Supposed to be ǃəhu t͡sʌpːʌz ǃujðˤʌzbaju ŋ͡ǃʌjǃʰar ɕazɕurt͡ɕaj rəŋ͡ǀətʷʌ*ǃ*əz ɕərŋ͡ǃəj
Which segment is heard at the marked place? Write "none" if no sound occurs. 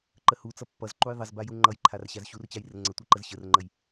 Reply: ǃ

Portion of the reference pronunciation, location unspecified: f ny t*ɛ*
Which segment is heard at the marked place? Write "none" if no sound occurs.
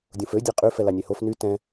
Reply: ɛ̃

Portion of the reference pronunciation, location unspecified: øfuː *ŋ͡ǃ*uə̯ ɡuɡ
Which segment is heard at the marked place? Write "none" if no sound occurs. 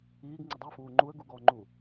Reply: ŋ͡ǃ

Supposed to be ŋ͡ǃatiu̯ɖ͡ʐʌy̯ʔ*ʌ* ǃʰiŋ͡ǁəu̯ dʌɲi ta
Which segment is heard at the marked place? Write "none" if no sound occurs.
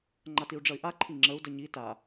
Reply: a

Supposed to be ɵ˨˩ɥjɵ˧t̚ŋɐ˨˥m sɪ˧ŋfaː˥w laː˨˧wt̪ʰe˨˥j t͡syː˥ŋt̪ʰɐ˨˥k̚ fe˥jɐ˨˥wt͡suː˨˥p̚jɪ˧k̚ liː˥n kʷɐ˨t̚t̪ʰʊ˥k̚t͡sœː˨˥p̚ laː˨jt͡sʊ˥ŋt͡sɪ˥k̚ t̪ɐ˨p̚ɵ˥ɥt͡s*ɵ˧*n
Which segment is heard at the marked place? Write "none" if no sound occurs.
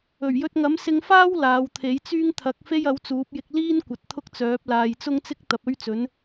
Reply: ɵ˨˥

